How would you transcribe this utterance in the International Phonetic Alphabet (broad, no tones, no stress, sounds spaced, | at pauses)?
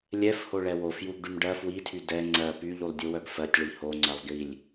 lʲ ɛ f h o ɭ ɛ w o f j u ɡ ɖ y m ɖ ɜ f w i tʰ y d ɛ ŋ͡ǀ ɜ p y ʎ u lˠ dʲ u w œ ɡ f ɜ tʲ ɭ i h o ŋ͡ǀ ɜ lˠ ɡ i lʲ